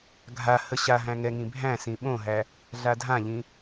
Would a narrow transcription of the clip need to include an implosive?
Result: yes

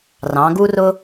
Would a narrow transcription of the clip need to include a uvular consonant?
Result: no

